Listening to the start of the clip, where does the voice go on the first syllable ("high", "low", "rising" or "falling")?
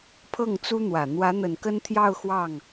falling